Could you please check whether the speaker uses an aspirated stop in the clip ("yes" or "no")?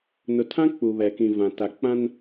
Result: yes